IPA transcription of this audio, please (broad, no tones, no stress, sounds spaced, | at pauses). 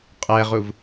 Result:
qʼ ɛ ʁ u v